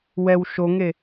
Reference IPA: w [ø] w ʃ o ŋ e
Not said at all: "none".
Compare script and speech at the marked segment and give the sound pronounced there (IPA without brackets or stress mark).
ɛ